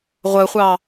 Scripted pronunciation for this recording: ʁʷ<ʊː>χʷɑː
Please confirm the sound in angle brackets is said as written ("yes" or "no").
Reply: no